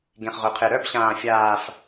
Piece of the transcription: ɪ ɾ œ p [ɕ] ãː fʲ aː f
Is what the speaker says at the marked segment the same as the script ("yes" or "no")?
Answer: yes